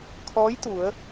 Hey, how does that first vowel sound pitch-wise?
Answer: rising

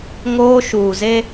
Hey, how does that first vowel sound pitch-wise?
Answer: high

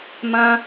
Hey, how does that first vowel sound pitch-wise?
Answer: high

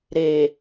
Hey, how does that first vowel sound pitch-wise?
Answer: low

